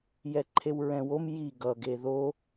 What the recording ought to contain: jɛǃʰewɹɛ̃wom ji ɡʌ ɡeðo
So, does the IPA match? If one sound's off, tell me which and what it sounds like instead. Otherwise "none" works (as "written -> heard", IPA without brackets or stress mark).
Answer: none